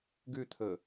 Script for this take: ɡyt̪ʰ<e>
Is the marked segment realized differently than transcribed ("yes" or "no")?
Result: yes